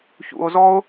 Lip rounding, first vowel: rounded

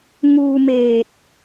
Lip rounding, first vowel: rounded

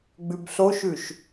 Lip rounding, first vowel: rounded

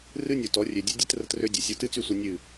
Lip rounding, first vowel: unrounded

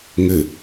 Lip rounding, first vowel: unrounded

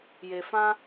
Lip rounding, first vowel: unrounded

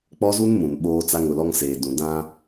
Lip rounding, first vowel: rounded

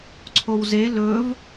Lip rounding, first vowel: rounded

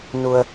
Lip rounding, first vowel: rounded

